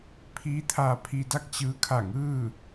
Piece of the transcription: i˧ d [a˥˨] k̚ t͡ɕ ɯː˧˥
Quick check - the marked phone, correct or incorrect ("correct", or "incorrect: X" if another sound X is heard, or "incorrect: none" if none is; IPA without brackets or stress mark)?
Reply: correct